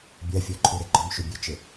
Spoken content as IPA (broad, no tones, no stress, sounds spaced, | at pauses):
bʲ a fʲ ɔ ǃʰ u ɾ e ɡ͡ǃ ɔ m ʃ u bʲ ø t͡ʃ ɪ